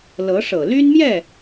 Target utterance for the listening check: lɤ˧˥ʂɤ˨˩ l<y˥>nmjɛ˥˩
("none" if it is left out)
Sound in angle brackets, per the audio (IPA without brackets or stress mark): y˥